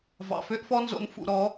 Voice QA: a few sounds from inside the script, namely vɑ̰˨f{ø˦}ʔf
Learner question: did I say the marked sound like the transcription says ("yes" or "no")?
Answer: yes